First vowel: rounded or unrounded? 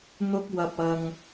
rounded